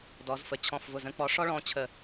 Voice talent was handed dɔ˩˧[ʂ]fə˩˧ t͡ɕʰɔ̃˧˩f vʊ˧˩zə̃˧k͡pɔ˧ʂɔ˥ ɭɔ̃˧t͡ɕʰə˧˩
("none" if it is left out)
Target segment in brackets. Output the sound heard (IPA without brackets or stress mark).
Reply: z